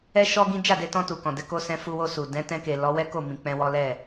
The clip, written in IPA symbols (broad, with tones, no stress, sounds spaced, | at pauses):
ɛ˦ ʃ ɔ˦ ɡ ĩ˦ d͡ʒ a˦˨ d e˧ t ɔ̃˧ t u˨ k ɔ̃˨ d ɛ˨˦ k o˧ s ɛ̃˧ f u˧ w o˧ s u˨ d ɛ̃˨˦ t ɛ̃˧ k e˨ l ɔ˨˦ w ɛ˦ k o˦˨ m ĩ˨ k͡p ɛ̃˧ w ɔ˦ l ɛ˦˨